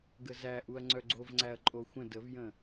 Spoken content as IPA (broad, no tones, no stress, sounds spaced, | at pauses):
ɡ ə z æ ʔ u ɐ̯ ŋ͡ǀ œ ɡ͡ǀ o v ŋ͡ǀ æ ɐ̯ ǃʼ o xʷ ə̃ d ə v j ə̃